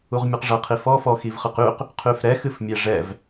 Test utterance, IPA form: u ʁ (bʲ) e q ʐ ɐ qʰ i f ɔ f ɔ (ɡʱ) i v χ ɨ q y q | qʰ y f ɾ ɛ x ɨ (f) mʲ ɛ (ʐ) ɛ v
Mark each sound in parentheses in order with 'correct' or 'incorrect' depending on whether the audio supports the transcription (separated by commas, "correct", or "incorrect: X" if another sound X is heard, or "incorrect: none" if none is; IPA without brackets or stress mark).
incorrect: mʲ, incorrect: x, correct, correct